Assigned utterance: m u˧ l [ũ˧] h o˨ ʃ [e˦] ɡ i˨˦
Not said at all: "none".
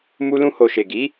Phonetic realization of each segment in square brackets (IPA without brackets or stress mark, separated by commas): ũ˧, e˨